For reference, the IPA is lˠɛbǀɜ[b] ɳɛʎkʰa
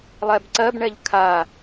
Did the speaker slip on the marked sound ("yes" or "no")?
no